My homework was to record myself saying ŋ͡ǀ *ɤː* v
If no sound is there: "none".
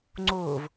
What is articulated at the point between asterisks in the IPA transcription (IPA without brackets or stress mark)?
oː